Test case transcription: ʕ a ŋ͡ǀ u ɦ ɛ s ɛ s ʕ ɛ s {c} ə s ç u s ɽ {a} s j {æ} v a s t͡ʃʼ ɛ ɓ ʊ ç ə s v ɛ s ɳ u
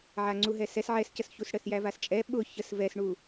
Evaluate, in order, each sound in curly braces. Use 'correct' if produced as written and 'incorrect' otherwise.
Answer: correct, incorrect, correct

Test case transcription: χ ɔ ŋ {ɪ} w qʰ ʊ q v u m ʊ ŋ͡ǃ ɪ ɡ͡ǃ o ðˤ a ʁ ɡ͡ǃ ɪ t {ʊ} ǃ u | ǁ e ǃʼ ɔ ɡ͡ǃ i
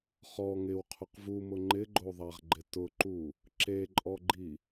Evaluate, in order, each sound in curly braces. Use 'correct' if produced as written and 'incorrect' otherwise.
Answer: correct, correct

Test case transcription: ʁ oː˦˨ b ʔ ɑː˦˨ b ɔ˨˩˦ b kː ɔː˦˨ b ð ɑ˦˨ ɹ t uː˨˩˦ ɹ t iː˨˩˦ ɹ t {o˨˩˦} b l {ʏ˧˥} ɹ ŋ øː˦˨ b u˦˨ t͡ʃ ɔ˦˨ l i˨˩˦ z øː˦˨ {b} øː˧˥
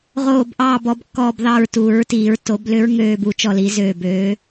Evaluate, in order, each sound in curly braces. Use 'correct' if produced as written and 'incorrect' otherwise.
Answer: correct, correct, correct

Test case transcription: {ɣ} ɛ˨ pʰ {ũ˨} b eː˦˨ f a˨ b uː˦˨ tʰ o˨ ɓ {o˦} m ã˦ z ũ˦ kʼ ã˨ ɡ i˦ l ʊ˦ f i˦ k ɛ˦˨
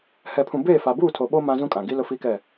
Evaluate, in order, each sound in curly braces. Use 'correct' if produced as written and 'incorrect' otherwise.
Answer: incorrect, correct, correct

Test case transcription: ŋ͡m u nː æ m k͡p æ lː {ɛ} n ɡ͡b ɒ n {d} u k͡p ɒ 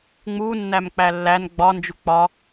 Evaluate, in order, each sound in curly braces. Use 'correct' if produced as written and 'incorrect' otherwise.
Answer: incorrect, incorrect

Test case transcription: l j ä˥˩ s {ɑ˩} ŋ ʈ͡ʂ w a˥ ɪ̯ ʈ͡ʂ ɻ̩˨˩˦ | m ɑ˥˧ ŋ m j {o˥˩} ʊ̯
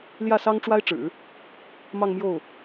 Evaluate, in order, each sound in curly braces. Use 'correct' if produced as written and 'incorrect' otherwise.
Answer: incorrect, correct

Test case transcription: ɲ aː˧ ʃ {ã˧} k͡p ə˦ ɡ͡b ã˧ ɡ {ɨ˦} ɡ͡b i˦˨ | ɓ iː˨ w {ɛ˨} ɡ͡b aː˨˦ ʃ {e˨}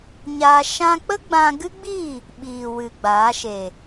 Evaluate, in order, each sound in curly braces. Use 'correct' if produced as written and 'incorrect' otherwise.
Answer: correct, correct, incorrect, correct

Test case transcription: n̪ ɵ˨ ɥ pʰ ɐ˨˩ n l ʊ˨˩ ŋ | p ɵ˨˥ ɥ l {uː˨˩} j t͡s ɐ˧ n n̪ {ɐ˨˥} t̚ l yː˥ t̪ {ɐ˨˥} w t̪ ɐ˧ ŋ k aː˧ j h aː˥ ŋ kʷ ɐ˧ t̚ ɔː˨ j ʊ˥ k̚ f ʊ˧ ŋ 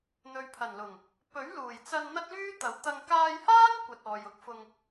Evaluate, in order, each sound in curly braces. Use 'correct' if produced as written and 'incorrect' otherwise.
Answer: correct, incorrect, correct

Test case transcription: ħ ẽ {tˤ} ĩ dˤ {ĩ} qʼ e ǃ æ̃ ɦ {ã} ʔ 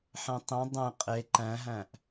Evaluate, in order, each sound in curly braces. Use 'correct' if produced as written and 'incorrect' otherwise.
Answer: correct, incorrect, incorrect

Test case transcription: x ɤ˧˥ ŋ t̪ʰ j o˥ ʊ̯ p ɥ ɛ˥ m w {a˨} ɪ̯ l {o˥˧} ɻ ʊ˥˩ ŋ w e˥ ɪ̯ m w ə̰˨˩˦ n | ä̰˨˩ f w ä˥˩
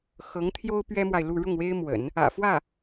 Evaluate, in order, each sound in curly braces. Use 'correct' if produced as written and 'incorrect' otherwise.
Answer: correct, incorrect

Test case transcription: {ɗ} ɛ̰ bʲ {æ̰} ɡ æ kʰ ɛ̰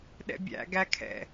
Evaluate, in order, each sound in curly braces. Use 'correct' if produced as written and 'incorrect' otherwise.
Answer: correct, correct

